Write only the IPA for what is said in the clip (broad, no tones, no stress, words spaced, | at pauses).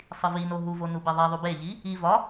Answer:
sˤivino ɦuvo nubeðˤiðˤu beʎi | i vɒ